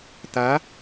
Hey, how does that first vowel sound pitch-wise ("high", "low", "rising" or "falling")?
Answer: rising